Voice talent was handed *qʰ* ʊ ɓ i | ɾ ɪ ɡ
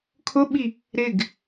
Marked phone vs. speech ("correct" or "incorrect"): incorrect